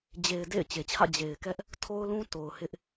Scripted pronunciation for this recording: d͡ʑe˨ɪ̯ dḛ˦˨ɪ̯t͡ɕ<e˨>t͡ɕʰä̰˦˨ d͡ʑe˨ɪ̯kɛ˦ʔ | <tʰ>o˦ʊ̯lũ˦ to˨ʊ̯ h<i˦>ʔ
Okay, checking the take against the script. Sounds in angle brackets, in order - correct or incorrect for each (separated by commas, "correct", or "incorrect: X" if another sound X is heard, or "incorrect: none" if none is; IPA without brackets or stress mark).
correct, correct, incorrect: ɪ˦